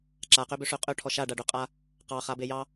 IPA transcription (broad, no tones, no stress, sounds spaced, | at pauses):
ǁ a q ø b ø ʂ ø qʼ ø ʈʰ ɔ ʃ a ɖ a ɖ ø qʼ a | q ɑ χ a b e j ɑ